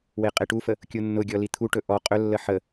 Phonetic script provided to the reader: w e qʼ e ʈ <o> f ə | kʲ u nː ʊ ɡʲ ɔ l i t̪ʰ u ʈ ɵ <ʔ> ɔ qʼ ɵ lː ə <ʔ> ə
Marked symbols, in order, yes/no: no, yes, no

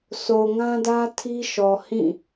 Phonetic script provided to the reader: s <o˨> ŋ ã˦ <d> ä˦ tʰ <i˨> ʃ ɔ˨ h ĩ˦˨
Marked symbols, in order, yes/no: yes, yes, no

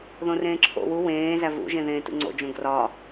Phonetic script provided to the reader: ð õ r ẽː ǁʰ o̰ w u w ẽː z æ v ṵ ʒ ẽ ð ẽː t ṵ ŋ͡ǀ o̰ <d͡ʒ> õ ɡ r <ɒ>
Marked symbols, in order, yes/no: yes, yes

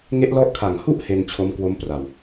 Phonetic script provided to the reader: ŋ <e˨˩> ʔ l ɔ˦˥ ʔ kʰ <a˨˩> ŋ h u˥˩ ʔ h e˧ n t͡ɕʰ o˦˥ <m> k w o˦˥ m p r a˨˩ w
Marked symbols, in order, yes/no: no, yes, yes

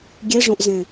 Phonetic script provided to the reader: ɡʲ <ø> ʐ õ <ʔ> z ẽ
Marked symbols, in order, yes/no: no, yes

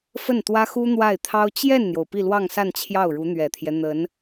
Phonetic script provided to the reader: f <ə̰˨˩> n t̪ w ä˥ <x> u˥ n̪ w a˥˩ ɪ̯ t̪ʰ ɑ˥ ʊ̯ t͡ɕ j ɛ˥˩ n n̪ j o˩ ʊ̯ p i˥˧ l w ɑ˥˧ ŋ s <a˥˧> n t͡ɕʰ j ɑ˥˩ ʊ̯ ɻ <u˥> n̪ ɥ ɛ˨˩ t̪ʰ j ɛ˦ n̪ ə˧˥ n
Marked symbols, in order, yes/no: no, yes, yes, no

